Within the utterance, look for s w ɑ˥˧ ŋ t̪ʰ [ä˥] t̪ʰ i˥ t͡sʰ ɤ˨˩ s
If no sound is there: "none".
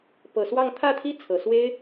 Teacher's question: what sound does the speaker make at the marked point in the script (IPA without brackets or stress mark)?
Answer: ä˥˩